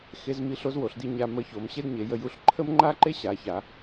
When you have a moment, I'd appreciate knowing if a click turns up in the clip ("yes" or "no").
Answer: yes